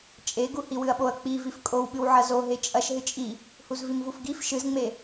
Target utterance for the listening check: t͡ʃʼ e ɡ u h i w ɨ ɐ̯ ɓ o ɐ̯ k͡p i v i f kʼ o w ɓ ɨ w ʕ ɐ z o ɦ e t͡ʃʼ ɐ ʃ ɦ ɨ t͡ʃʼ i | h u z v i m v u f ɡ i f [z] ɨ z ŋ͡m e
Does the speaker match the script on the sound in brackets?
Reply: no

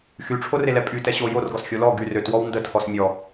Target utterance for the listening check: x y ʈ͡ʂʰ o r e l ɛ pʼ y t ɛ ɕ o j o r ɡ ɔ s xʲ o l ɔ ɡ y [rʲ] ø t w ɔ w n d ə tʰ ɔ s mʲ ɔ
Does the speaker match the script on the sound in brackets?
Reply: no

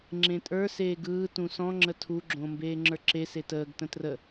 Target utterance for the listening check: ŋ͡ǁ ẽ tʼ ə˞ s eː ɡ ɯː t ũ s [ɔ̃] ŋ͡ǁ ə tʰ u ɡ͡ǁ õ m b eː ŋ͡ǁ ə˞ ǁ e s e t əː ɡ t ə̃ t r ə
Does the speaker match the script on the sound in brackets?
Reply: yes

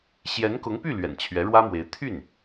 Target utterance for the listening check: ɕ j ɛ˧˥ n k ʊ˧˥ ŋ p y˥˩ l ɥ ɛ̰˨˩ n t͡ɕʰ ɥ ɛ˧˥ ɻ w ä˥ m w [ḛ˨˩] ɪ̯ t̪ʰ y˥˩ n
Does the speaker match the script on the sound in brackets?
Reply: no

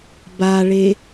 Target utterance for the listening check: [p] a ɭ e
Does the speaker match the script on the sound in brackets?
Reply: no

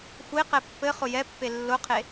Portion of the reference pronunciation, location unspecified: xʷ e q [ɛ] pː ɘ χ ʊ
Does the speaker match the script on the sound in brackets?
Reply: yes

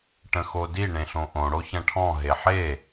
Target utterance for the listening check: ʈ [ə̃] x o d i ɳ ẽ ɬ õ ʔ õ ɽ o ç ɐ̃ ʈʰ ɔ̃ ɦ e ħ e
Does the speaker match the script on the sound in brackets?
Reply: yes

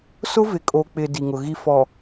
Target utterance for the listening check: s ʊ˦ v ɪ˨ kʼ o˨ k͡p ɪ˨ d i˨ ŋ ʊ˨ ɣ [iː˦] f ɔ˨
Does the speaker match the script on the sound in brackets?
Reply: no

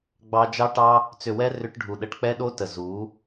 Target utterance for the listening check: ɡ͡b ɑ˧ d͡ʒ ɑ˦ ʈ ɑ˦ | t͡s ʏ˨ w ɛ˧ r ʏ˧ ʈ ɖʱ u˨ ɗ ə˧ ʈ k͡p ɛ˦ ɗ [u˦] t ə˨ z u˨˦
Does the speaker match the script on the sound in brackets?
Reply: no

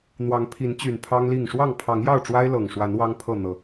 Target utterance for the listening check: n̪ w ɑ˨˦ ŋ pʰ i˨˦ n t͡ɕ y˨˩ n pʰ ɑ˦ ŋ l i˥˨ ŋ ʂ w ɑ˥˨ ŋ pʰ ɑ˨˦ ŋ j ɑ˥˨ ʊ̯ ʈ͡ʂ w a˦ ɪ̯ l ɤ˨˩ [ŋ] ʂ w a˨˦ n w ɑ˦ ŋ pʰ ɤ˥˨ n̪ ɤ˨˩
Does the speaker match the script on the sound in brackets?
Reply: yes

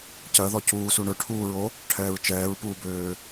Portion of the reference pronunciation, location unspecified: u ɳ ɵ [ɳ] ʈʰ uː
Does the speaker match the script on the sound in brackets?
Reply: no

